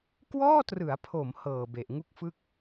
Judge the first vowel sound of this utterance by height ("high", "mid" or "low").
mid